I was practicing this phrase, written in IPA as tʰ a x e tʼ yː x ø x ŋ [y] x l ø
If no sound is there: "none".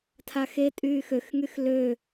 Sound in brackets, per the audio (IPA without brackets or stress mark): y